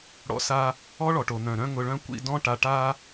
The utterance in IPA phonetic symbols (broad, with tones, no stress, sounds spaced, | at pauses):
ɽ ɔ̰˧ s a˧ | ɔ˦ ɭ ɔ˨ ʈ o˨ n̪ œ̃˨ ɾ œ̃˦ ŋ ʊ˧ ɭ œ̃˦ kʷ ḭ˧ d ɔ̃˦ ʈ a˧ ʈ a˦